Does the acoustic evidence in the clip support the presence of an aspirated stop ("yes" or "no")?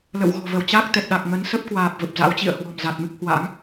no